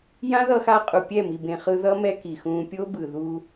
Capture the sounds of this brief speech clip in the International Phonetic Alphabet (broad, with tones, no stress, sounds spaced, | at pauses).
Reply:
j ã˦ ð ʌ˧ x aː˧ qʼ u˨ pʲ ɛ˦˨ m i˨ b ẽ˨ χ ɯ˧ ð ʌ˦ m ɛ˦ k i˨ x ũː˧ pʲ o˦ b ɯ˨ ð uː˧